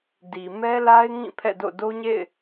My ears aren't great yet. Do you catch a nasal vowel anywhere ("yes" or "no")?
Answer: yes